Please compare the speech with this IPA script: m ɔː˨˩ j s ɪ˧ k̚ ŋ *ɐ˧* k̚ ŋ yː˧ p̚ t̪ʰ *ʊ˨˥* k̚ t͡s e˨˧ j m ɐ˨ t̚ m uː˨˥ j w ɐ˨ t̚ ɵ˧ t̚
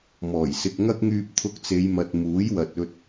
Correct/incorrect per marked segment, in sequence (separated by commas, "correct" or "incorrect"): incorrect, incorrect